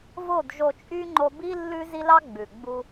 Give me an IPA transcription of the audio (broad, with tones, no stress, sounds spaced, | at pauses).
v o˦˨ d ʒ o˧ t͡ʃʼ y˦ ŋ͡ǃ o˧ b i˦ lː ʉ˦ z i˦ l ɑ˦ ɡ͡b ʉ˨ ɡ͡b u˧